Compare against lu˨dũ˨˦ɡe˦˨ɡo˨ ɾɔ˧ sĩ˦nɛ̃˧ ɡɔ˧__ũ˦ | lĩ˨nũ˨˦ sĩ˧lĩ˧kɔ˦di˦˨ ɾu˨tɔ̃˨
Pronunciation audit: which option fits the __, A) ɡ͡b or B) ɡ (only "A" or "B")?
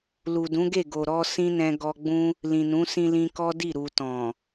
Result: A